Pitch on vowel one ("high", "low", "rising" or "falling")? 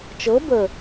rising